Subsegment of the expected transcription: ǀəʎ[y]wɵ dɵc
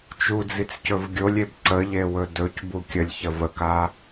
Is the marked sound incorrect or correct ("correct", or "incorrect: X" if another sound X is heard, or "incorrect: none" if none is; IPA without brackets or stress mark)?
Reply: incorrect: e